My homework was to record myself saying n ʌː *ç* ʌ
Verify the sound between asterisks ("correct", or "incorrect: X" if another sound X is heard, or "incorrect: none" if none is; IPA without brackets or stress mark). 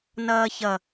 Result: correct